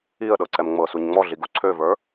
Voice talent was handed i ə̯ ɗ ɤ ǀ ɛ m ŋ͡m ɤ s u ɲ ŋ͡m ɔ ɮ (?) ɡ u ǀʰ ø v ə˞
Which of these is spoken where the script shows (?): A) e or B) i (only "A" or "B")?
B